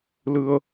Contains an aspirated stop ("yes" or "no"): no